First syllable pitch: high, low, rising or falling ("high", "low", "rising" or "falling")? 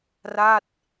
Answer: falling